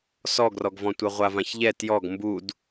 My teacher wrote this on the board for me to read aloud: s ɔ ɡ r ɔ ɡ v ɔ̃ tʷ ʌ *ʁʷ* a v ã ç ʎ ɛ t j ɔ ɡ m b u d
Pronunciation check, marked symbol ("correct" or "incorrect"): correct